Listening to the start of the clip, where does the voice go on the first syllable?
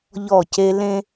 falling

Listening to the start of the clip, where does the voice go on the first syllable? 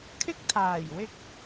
high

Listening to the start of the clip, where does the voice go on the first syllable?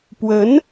rising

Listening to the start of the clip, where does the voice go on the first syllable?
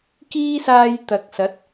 high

